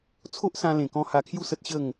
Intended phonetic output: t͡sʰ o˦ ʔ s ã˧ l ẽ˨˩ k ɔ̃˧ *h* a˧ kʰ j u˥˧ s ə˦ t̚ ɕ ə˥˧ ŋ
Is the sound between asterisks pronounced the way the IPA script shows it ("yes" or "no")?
yes